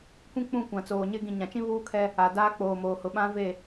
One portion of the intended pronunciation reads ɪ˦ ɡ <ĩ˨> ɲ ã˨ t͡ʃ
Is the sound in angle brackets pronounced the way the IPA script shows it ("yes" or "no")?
yes